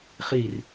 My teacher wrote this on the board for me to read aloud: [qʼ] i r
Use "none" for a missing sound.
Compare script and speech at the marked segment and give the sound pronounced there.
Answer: χ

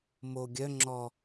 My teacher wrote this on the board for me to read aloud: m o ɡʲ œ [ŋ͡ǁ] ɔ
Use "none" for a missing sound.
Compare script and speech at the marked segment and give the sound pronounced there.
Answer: ŋ͡ǁ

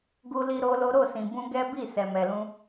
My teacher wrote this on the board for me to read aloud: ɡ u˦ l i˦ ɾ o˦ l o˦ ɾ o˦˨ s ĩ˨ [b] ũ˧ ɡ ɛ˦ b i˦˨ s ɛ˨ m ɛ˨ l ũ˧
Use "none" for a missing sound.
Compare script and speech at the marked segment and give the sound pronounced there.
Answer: b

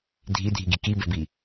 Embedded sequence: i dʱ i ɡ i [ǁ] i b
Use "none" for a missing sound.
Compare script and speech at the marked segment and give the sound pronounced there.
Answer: k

